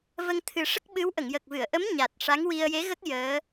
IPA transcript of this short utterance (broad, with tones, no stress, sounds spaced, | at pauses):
v ə˧ ŋ t̪ʰ ɨ˨˩˦ ʂ ə˦˥ k̚ ɓ ɨ˧˥ w ʔ ə˨˩˨ ŋ j ə˨˩ k̚ v ɨ˨˩˨ ə̯ ʔ ə˧˥ m ɲ a˨˩ t̚ ʂ a˧˥ ŋ w i˧ ə̯ j e˧˥ ɣ ə˦˥ k̚ j əː˧˥